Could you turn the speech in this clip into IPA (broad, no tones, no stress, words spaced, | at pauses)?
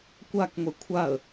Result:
kʷak ŋʷekʷʰaə̯